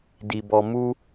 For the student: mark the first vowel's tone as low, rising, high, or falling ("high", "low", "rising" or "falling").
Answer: low